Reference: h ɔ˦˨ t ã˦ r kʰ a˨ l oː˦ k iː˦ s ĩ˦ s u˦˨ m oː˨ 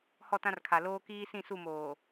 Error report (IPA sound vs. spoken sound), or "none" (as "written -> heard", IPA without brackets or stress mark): ĩ˦ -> ĩ˦˨